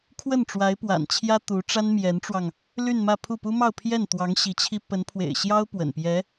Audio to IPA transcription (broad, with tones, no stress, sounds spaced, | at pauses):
kʰ w ə˥˩ n ʈ͡ʂ w a˧˥ ɪ̯ p w a̰˨˩ n t͡ɕʰ j ä˥ t̪ u˧˥ ʈ͡ʂ a˥ n m j ɛ˧˥ n ʈ͡ʂ w ɑ˧ ŋ | l y˥˧ n m ä˥˧ pʰ u˥˩ p u˥ m ɑ˥˧ ʊ̯ pʰ j ɛ˥˩ n t̪ w ɑ˧˥ ŋ ɕ i˧˥ t͡ɕʰ i˥ p ə˧˥ n pʰ w ḛ˨˩ ɪ̯ ɕ j ɑ˥ ʊ̯ p w ə̰˨˩ n p j ɛ˧˥